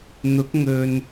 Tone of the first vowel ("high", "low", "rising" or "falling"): rising